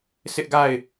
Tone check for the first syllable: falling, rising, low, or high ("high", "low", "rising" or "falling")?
high